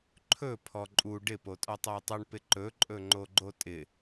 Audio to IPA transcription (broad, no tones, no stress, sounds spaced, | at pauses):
ǃʰ ɵ pʰ ɔ ǃʼ u ɖ ɪ p o tʼ ɔ tˤ ɔ ə̯ tˤ ʌ ɳ p ɪ ǃ ɵ ǃʼ ɵ ŋ͡ǃ o ɡ͡ǃ o tʼ ɪ